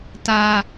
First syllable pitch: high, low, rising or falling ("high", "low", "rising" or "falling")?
high